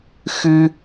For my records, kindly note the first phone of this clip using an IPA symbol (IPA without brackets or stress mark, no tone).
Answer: x